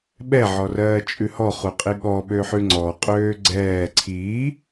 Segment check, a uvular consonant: present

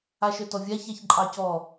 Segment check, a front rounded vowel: present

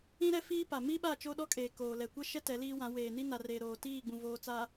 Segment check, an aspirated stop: absent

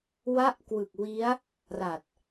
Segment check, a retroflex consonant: absent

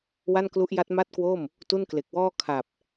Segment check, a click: absent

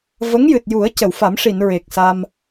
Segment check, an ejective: absent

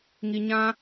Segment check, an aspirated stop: absent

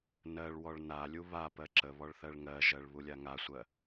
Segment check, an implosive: absent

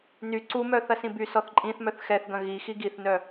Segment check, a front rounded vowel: present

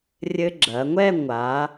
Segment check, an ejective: absent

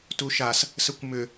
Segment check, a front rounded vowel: present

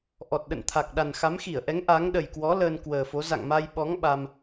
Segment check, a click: absent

